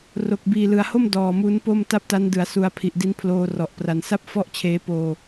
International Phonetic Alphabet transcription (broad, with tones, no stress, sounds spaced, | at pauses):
r o˨˩ k̚ b iː˨˩ l ɯ˨˩ a̯ h o˥˩ m d ɔː˨˩ m u˦˥ n p o˥˩ m t a˥˩ p̚ t a˦˥ n d ɯ˩˦ a̯ s u˩˦ a̯ pʰ i˨˩ ʔ d i˦˥ n pʰ l oː˧ r ɔ˨˩ ʔ p r a˩˦ n s a˥˩ p̚ f ɔ˥˩ ʔ t͡ɕʰ eː˦˥ p oː˧